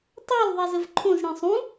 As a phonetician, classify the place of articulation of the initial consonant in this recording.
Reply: alveolar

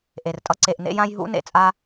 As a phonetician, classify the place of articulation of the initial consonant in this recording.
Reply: glottal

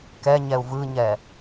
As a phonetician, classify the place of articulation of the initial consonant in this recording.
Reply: velar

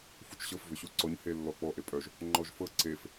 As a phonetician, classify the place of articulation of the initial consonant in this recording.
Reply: labial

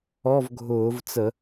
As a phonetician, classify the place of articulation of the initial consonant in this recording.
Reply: labial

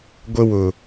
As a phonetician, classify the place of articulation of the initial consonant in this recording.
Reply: velar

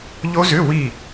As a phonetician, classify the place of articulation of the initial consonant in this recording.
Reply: palatal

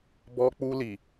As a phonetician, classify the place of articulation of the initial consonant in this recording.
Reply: labial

